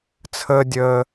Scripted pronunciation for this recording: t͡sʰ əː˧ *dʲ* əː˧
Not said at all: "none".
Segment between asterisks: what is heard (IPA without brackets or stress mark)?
dʲ